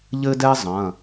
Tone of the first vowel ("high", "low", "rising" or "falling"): high